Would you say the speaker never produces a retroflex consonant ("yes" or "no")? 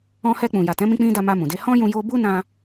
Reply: yes